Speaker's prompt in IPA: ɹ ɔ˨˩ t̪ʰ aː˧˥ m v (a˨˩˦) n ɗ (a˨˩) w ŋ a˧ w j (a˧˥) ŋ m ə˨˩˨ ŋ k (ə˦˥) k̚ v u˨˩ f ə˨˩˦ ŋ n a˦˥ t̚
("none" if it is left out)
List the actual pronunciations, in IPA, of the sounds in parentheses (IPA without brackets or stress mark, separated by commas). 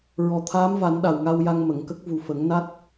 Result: a˨˩˦, a˨˩, a˧, ə˦˥